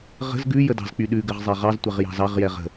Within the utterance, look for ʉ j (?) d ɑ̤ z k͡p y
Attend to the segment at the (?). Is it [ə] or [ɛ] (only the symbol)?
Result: ə